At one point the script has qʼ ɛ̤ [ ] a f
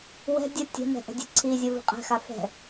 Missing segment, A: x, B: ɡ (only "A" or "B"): A